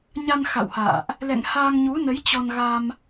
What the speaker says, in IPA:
ɲ a˧ n x a̰˧˨ w h a̰ː˧˨ ʔ | l ɛ̰˧˨ ŋ h aː˧ ŋ ɲ u˨˦ n ə˨˦ j t͡ɕ ɔ˧ n ɣ a˧ m

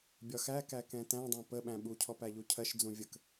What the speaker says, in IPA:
bʲ ɒ x æ k æ k ɛ̃ t æ̃ dˤ ɛ̃ p ə ɓ æ̃ ɓ u cʰ ɔ p æ ʎ u cʰ ɜ ʃ d͡z ũ vʲ ə k

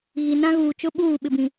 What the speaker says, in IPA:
ɣ i˨ n ã˦ ɣ uː˨ t͡ʃ ʊ˦ ɓ uː˦˨ ɓ ɪ˨ b ĩ˨

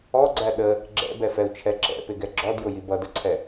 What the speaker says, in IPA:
ɔ ɡ͡ǀ æ ɗ ə | ɡ͡ǁ ɛ̰ b ɛ f ɛ u̯ t͡ʃʰ ɛ ǁ ɛ̰ p ɪ ɡ ɛ ɡ͡ǁ ɔ d j ʊ j i b ʌ d ə ǀʰ ɛ

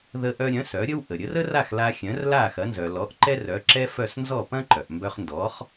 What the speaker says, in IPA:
ð ə˧ ʔ œ˧ ɾʲ œ̃˩˥ s œ˩˥ ɾʲ ə˥ w ʔ ə˩ ɾʲ ə˩˥ r ə˥ r a˥˩ x l a˧ xʲ œ̃˩˥ r l a˥˩ x ɐ˩˥ n z œ˩ l ɔ˩˥ ʔ ǃ ɛ˥ r œ˩˥ ǁ ɛ˥ f œ˥˩ s n z ɔ˥˩ p ɐ̃˥ ǃ œ˩ ʔ m b œ˧ χ n d ɔ˩˥ χ

